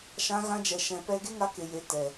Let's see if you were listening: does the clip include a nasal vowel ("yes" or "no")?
yes